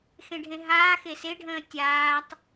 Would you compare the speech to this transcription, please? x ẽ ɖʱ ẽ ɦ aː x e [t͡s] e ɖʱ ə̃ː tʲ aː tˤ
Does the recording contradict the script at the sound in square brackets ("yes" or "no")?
yes